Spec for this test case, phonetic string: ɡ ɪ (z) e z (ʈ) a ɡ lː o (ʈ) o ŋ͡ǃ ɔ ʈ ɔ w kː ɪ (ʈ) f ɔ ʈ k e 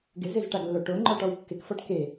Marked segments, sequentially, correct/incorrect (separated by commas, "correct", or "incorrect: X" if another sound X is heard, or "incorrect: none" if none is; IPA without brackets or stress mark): correct, correct, correct, incorrect: k